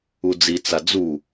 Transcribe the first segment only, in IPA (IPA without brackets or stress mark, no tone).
u